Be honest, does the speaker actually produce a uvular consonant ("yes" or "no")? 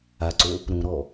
no